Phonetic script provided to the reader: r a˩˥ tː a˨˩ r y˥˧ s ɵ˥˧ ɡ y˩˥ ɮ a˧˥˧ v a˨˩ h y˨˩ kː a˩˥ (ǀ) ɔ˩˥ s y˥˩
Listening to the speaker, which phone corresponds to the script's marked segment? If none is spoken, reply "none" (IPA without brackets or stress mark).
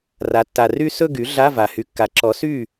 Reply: ǁ